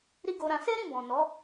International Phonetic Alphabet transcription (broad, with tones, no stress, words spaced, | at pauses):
ɾi˦ɡo˧ɾã˧ se˦ɾĩ˦˨ bɔ̃˨nɔ˨˦